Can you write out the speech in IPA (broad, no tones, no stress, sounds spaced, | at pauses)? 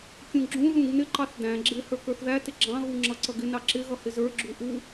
kʲ ũ ɡ͡ǁ ũ ð ũ ɡ n ɪ ǃ ɑ θ d æ̃ ɡ͡ǁ ɪ h ə˞ k ə˞ θ ð æ t ɪ ɡ͡ǁ ɑ̃ ɣ u ŋ͡ǁ ʌ ǀ ʌ ɡ ɪ n ɑ ǁ ɪ ɣ ʌ h ɪ z ə˞ ɡ͡ǁ u ʔ u